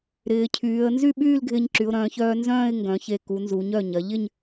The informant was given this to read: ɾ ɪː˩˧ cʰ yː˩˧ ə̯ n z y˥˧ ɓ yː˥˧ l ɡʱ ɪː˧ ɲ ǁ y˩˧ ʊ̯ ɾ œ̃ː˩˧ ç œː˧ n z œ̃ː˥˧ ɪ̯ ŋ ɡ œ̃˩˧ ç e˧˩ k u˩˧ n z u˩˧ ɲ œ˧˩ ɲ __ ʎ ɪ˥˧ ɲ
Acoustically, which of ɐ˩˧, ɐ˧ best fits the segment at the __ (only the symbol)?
ɐ˩˧